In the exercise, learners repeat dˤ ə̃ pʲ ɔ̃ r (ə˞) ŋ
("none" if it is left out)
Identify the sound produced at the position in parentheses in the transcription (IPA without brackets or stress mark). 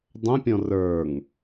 ə˞